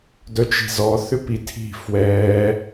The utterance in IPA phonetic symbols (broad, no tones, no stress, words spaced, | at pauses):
dœt͡ʃi̤zɔ θʏpitʰi̤ fwɛ